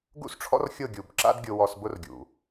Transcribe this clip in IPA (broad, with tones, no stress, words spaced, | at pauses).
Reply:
ɡṵ˦sʈ͡ʂʰɔ̰˦r xʲʊ˦˨ɡʲu˨bǁa̰˦dɡʲʊ˧ wɔ˧sbʊ˦rɡʲṵ˨